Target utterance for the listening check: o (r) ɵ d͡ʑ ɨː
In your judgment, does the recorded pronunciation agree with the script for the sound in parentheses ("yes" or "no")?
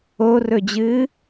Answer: yes